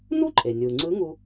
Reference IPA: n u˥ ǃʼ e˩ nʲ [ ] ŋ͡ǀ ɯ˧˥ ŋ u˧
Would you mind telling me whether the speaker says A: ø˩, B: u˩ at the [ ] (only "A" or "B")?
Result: B